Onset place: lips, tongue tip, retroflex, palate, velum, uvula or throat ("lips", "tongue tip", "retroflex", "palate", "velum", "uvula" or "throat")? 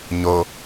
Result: palate